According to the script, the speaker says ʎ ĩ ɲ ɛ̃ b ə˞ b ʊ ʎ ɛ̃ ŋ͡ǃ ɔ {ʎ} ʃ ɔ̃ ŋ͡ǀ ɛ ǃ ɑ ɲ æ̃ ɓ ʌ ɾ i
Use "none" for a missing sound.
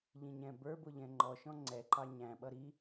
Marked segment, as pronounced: none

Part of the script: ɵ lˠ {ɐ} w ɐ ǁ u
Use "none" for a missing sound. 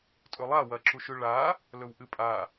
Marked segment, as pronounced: a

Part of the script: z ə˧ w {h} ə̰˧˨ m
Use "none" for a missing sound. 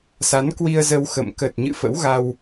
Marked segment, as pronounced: x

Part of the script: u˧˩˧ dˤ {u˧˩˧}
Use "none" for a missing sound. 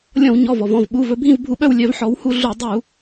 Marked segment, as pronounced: u˧˩˧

